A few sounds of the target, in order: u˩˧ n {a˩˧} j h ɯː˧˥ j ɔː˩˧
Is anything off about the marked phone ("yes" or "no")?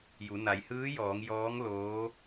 no